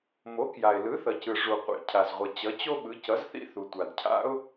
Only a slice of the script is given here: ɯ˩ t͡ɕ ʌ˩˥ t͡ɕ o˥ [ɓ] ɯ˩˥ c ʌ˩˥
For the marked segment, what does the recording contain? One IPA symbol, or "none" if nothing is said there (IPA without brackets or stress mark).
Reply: ɓ